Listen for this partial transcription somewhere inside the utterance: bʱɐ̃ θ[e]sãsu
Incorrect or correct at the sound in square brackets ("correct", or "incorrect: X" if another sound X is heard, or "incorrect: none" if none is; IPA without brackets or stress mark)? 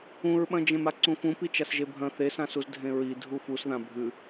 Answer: correct